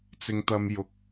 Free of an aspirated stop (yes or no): yes